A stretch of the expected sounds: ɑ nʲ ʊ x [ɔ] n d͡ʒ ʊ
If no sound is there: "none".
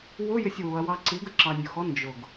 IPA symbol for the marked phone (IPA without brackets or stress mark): ɔ